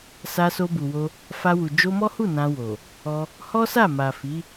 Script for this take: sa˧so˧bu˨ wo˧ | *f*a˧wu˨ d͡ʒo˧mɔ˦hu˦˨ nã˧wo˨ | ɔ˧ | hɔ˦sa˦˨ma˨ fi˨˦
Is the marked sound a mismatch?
no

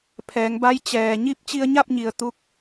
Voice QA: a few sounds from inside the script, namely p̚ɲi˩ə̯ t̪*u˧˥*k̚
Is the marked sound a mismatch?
no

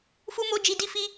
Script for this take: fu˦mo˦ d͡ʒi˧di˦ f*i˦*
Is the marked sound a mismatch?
no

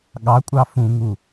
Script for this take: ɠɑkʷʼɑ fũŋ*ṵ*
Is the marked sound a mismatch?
yes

